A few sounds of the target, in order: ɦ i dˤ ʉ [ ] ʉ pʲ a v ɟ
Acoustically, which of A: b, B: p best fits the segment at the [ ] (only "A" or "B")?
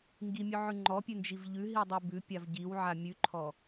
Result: A